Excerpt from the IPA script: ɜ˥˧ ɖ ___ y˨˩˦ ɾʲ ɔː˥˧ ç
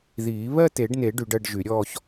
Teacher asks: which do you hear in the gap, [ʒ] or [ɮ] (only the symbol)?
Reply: ʒ